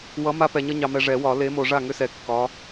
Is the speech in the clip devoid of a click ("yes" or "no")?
yes